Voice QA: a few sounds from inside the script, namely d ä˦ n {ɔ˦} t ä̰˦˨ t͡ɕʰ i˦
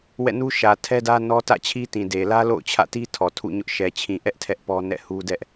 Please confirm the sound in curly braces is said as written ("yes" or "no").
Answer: yes